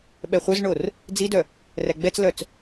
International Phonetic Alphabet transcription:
ɓɛχʷœzɳor | d͡zidœ | ræɡ͡bɛt͡slœt͡s

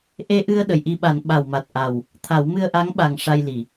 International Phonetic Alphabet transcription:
ʔe˧ʔɨ˧ə̯ ɗə˨˩˨jʔi˧ɓa˨˩˦n ɓa˨˩wma˨˩t̚ ʔa˨˩w | t̪ʰa˨˩˦w mɨ˧ə̯ʔa˧˥ŋɓa˨˩ŋ ʂa˧jli˨˩˨

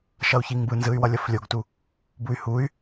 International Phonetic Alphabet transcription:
ʃʌu̯çiŋbɯnzɯy̯ wʌlʲʌflʲoɡtu | buy̯huy̯

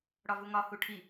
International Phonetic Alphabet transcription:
ɽɒvuŋɒ huʈʰi

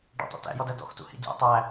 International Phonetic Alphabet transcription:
ɖɔ̰tˤṵ tæ̰jɔdæ dɔ̰xtṵhḭ dʲæ̰ tˤæ

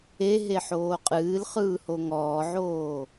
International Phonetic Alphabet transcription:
eɦeħoː qʼɨːlχɯːho ŋɔːʕoː

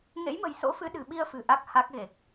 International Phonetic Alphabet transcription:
ŋḛ˧˥jmə̤˨˩jso̰˧˥fɨ˨˦ ɗɨ̤˨˩ɓi˧ə̯fɨ̤˨˩ ʔa˦˥k̚ha˦˥k̚ɣe˨˩k̚

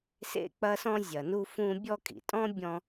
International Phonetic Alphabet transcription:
sḛ˦k͡pɐ˦sɔ̃˦ zʲɐ˨nu˦fũ˦ bʲɔ˦kʼḭ˩tʼɔ̃˥bʲɔ̃˦

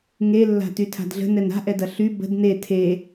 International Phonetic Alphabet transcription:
ŋelːa̤ tytʰa̤dɮə̤ nɛna̤ʔɛdɐ ɬy bə̤d ne tʰe

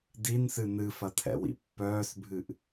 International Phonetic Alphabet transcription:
dinsɨ nɨfɐtʰɛ̰wḭ pːœːsbʱɨʔ

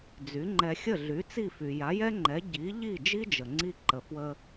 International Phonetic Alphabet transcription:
d͡zy˩˥ŋ͡ǃɛ˧ xʲə˥˩ɮy˩˥t͡si˥˩ fy˩ja˩˥jɛ˥ŋ͡ǃɛ˩˥ ɟi˩˥ʎi˥˩ d͡ʒi˥d͡ʒə˩ŋ͡ǀi˧ ǃə˩fwə˧

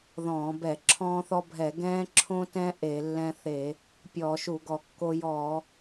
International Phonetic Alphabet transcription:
ðɔ̃ː˧˩˧bɛ˧˩˧ ǁʰɔ̃ː˦θɔ˦bʱɛ˧˩˧ ɡɛ̃ː˦ǁʰõ˦tɛ̃˦ ʔe˧˩˧lːɛ̃˦ θe˧˩˧ | pʲɔː˧˩˧ʃu˧˩˧ɡɔ˧˩˧kːo˦ jɔː˧˩˧

